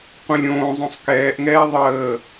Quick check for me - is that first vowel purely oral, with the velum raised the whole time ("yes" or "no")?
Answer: no